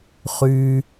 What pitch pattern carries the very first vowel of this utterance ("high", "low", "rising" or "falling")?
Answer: low